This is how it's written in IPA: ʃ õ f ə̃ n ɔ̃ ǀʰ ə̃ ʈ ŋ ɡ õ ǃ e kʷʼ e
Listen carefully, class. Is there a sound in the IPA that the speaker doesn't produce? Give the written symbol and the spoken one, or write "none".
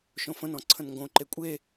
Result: ʈ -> n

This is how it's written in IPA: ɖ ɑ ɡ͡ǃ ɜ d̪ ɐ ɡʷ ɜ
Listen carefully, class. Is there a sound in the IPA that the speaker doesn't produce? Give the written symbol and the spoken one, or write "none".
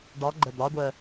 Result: ɐ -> ɑ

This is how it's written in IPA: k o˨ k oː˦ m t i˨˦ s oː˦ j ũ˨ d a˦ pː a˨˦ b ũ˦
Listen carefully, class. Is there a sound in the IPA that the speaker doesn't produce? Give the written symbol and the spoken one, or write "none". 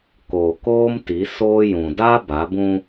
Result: pː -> b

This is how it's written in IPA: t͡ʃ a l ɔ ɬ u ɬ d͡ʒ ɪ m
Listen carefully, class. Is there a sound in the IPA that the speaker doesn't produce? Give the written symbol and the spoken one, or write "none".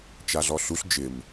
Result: l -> ɮ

